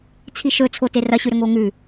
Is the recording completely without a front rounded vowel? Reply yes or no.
yes